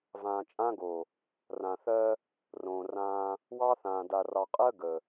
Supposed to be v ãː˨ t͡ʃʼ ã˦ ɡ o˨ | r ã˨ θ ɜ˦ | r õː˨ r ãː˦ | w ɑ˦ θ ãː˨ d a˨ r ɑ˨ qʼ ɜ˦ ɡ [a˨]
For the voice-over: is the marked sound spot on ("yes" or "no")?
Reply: no